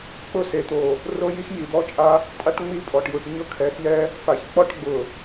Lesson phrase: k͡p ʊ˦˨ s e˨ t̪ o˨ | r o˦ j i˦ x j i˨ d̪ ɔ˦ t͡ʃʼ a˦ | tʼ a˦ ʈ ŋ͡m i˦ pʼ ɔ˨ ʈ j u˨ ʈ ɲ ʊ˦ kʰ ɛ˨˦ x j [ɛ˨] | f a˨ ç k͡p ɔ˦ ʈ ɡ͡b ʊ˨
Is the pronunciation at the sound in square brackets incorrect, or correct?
incorrect: ɛ˦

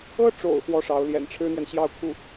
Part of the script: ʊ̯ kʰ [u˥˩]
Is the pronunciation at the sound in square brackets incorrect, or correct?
correct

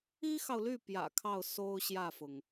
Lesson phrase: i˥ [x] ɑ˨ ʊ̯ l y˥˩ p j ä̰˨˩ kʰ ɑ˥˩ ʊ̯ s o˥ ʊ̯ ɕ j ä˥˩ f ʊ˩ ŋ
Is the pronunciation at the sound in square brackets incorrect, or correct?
correct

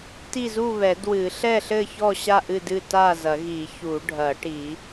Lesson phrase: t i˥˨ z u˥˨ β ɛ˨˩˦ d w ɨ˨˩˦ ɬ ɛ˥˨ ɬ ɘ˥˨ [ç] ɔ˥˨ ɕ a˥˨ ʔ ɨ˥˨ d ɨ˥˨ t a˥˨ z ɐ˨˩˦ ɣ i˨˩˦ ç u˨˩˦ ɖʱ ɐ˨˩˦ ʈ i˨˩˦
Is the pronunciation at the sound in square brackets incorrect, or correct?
correct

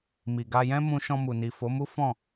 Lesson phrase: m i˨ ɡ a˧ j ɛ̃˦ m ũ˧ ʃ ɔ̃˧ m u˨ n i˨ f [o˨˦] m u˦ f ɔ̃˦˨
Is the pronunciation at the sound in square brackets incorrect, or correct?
correct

